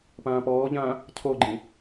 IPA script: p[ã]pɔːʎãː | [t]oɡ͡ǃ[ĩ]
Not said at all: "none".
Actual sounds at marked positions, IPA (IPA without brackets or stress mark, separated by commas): ãː, cʰ, ĩ